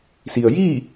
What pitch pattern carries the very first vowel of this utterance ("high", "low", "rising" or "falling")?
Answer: low